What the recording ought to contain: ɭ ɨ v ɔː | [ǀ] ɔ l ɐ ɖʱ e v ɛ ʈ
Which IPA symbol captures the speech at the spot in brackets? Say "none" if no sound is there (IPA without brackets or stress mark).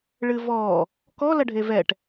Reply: k